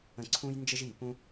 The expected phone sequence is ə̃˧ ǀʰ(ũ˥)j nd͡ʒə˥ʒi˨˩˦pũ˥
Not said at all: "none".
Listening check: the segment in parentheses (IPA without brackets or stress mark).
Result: ũ˥